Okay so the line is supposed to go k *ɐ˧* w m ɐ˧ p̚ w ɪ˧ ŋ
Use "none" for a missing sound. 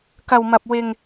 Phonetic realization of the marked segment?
ɐ˧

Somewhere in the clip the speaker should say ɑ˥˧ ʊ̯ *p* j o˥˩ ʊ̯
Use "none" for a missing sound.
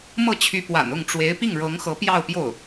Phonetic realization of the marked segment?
p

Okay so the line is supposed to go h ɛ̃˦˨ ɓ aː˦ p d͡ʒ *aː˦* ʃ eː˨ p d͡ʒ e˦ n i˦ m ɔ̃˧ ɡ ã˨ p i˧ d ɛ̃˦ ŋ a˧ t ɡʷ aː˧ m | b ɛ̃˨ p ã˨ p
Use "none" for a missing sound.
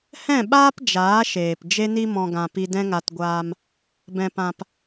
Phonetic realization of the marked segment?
aː˨˦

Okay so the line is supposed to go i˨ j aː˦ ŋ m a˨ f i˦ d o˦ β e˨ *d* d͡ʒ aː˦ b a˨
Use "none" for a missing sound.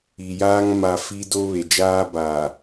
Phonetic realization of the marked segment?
none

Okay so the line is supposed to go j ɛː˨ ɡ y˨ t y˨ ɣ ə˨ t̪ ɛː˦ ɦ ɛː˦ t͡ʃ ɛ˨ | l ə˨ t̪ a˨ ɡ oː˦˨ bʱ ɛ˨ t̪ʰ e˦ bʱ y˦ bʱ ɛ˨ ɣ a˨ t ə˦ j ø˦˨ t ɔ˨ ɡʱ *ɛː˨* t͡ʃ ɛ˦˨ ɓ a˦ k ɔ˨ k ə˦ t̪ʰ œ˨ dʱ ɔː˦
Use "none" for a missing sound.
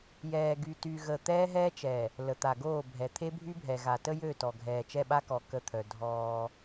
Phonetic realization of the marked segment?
ɛː˨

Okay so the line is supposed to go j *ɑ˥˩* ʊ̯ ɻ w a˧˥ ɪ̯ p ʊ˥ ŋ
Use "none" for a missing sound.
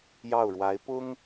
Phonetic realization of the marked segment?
ɑ˥˩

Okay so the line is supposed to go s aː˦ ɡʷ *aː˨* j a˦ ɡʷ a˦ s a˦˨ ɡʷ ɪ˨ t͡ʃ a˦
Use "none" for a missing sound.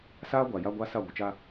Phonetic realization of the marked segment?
a˨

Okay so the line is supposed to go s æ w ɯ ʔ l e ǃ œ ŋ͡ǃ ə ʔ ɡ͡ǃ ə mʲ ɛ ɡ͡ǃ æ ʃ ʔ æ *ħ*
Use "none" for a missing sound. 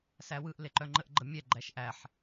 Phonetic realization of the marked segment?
ħ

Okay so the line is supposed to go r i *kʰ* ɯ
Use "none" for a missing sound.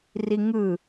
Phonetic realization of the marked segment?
ŋ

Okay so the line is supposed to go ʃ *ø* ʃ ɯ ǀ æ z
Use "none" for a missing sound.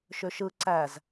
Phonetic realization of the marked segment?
ø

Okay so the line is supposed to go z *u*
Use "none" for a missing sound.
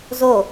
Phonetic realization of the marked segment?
o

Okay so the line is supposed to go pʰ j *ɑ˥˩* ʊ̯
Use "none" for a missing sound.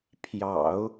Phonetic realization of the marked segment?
ɑ̰˨˩˦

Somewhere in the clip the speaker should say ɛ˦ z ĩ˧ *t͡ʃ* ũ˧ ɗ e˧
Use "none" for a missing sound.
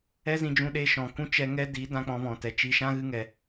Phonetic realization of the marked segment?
d͡ʒ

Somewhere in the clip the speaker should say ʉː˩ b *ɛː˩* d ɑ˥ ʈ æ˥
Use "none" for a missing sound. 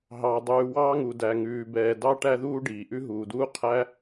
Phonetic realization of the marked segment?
ɛː˩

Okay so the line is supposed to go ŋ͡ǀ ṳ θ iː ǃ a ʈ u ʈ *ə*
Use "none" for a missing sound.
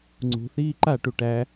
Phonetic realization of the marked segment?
æ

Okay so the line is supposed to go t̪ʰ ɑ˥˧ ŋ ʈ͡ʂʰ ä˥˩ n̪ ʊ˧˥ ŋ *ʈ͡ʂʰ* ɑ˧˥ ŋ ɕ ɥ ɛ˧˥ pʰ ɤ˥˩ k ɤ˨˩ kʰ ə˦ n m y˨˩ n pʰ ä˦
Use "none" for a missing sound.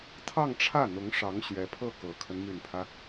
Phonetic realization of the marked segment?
ʂ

